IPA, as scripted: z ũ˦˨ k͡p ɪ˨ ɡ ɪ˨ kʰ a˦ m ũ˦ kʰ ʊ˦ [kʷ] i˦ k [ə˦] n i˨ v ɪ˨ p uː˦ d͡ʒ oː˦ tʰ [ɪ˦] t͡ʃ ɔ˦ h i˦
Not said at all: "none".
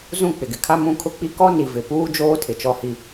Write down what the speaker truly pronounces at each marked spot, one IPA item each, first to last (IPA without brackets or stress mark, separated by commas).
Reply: k͡p, ɔ˦, ɪ˨